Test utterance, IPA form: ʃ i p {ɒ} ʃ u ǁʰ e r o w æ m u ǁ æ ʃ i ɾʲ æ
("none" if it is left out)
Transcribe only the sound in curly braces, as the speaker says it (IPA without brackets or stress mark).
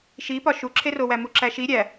ɒ